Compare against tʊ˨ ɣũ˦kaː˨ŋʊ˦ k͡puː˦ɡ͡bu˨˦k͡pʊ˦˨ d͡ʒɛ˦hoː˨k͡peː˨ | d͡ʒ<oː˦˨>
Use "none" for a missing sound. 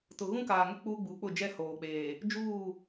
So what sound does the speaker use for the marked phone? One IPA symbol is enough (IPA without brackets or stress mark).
uː˦˨